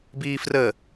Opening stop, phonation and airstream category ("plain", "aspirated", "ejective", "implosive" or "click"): plain